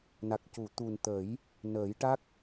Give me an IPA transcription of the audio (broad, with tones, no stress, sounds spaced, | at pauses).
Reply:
n a˨˩ k̚ c u˨˩˨ t̪ u˨˩ n t̪ ə˨˩˦ j | n əː˨˩˦ j ʈ a˦˥ k̚